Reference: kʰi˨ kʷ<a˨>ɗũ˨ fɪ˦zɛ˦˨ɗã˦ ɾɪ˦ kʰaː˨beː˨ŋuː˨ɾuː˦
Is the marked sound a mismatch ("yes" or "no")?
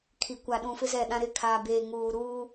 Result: no